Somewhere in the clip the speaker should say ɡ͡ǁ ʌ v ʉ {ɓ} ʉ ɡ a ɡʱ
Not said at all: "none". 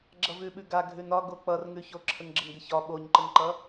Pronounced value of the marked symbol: ɓ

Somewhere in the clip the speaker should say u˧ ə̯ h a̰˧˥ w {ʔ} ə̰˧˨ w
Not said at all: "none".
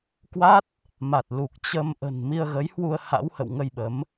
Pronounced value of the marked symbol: h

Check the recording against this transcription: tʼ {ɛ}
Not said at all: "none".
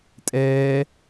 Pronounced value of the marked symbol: ɛː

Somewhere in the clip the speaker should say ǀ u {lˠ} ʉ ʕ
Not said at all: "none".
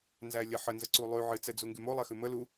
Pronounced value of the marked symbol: lˠ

